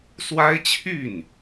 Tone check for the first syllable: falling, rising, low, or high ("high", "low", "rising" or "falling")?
high